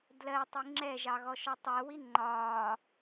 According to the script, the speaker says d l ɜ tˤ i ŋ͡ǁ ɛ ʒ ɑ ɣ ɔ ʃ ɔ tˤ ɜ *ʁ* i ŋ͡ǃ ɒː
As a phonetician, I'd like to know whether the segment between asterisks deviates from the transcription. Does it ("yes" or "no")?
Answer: yes